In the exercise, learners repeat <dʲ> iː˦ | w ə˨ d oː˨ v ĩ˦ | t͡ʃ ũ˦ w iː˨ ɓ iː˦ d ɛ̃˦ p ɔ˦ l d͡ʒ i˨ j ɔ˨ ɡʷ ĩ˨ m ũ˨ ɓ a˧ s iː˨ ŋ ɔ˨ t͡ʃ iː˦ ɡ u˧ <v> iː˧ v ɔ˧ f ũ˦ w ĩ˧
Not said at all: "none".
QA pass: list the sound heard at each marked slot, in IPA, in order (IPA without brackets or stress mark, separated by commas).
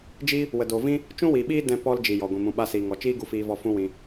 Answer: d͡ʒ, f